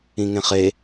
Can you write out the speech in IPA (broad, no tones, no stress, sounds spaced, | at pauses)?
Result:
ĩ ŋ ẽ χ e